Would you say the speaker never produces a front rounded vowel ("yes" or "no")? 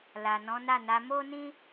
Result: yes